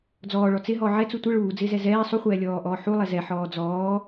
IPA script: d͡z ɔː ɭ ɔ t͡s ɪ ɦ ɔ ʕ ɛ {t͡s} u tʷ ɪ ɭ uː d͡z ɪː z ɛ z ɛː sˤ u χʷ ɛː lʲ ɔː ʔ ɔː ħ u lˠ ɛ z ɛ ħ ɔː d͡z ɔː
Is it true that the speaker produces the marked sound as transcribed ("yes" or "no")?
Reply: yes